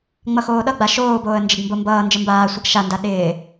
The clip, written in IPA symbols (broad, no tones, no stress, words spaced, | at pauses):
ŋ͡mʌxoːɗʌ ɡ͡baʃoːboːə̯ nd͡ʒɪɡmbombʌː nd͡ʒəmbaːsʷʌɡ ʃanda ɗɪː